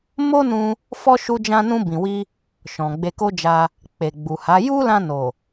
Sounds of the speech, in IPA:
m o˦ n ũ˧ | f ɔ˦ ʃ u˧ d͡ʒ ã˧ n ũ˧ b ĩ˨ w i˧ | ʃ ɔ̃˨ ɡ͡b e˧ k o˦ d͡ʒ a˧ | k͡p e˨ ɡ͡b u˨ h a˨˦ j u˦ l ã˧ n o˨

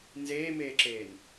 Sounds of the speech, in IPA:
n z eː m eː ǁ eː n

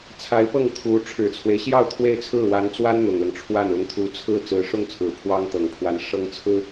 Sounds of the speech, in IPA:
t͡sʰ a˧˥ ɪ̯ p ɤ˥˩ ŋ t̪ʰ u˧˥ ʈ͡ʂʰ ɻ̩˨˩ t͡sʰ w e˦ ɪ̯ ɕ j ɑ˥˧ ʊ̯ t̪ʰ w e˥˧ ɪ̯ t͡sʰ ɹ̩˥˩ w a˧˥ n t͡s w a˥ n n̪ ʊ˨˩ ŋ l ɤ˦ ŋ ʈ͡ʂʰ w a˥˩ n ʊ˧˥ ŋ t̪ʰ u˧˥ t͡sʰ ɹ̩˥˩ t͡s ɹ̩˧˥ ʂ ʊ˥˩ ŋ t͡sʰ ɹ̩˨˩ pʰ w ɑ˥ ŋ t̪ ɤ˨˩ ŋ pʰ w a˧˥ n ʂ ɤ˥ ŋ t͡sʰ ɹ̩˥

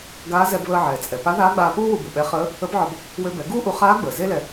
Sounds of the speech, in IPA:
ɡ aː˧˥ z ɛ˧ b β əː˧ ʕ ɛː˩ t͡sʼ ɛ˩ p a˧˥ ð aː˧˥ ɡ͡b aː˧ p uː˥ w u˧ b u˩ ɓ ɛ˧˥ χ əː˧˥ | ə˧˥ b ʕ ɒ˧ b | w ø˧ b ɛ˩˧ ɡ uː˥ ʔ u˧ χ aː˧˥ ɡ͡b əː˩ z e˥ l ɛ˧

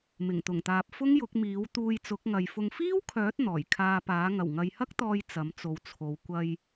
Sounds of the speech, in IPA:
m ɪ˨˩ ŋ t̪ ʊ˨˩ ŋ t̪ aː˨ p̚ f ʊ˥ ŋ j ʊ˨˥ k̚ m iː˨˥ w t̪ uː˧ j t͡s ʊ˨˥ k̚ ŋ ɐ˨ j f ʊ˧ ŋ f iː˥ w kʰ œː˨˥ t̚ n̪ ɔː˨˩ j kʰ aː˧ p aː˨˥ ŋ ɐ˨˩ w ŋ ɐ˨ j h ɐ˥ k̚ t̪ ɔː˧ j t͡s ɐ˨˥ m t͡s o˨ w t͡sʰ o˨˧ w kʷ ɐ˧ j

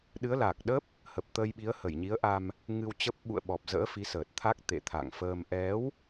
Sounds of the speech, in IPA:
ɗ ɨ˨˦ ə̯ l a˨˩ k̚ ɗ ə˦˥ p̚ | h ə˨˩ p̚ t̪ əː˧ j ɓ i˨˦ ə̯ h ə˧˩ j ɲ i˨˦ ə̯ ʔ a˧ m | ŋ ɨ˧ w t͡ɕ ə˦˥ p̚ ɓ ṵ˧˨ ə̯ ɓ ɔ˨˩ p̚ z ə̰ː˧˥ f i˨˦ s əː˨˩ t̚ t̪ʰ a˦˥ k̚ t̪ ḛ˧˨ t̪ʰ a̰˧˨ ŋ f əː˧ m ʔ ɛ˨˦ w

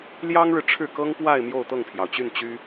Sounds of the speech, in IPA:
l j ɑ˥ ŋ ɻ ɻ̩˨ ʈ͡ʂʰ ɻ̩˥˩ k ɤ˥ ŋ p w a˥˧ ɪ̯ m j o˥˧ ʊ̯ t̪ ɤ˥˩ ŋ pʰ j ɑ˩ ʊ̯ t͡ɕ y˥˩ n t͡ɕ y˥

